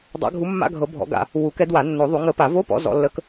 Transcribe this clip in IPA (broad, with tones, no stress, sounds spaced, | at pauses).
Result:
dˤ a̰˨˦ ɡʱ u˨˦ mː a̰˧˥˧ ɡʱ ɤ˨˩˦ bʱ ɔ̰˨˦ ɡ a̰˨˩˦ | w u˨˩˦ k ɛ˨˦ d w a˨˩˦ nː o˨˩˦ ðˤ u˨˩˦ ŋ ə˨˦ p a˨˩˦ v o˧˥˧ p ɔ̰˨˦ z ɔ̰˨˦ lː ə˧˥˧ k